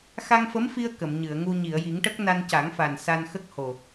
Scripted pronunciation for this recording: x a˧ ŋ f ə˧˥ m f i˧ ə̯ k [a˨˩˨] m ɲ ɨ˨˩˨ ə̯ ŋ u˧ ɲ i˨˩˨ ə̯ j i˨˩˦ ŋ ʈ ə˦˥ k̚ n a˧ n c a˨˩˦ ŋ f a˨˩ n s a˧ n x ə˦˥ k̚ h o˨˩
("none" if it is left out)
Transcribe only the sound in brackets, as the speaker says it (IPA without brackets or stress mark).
ə˨˩˨